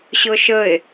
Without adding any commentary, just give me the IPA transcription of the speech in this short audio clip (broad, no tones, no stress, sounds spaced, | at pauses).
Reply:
ɕ ɤ ʃ ə e̯